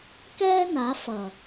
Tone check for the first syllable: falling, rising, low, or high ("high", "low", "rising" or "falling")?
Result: high